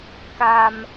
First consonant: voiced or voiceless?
voiceless